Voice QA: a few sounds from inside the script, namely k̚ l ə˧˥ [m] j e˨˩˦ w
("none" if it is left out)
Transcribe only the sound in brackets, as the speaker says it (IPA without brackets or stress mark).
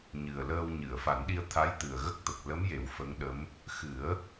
m